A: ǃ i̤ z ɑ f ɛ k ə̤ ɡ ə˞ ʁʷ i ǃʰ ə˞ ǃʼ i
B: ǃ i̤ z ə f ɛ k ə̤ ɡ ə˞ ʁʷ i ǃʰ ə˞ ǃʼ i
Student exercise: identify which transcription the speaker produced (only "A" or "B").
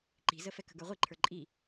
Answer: B